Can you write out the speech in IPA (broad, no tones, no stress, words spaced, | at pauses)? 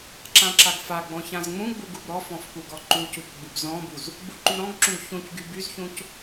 ǁãǁaɡfaɡ͡bɔ̃ çãzŋ͡mũɡ͡buɡ ubɾɔfɔ̃f kuɡɔǃucuc ɡ͡bubzɔ̃buz | ɡ͡buǃyɾɔ̃ɡǁũɡ çũc ɡybyzçũc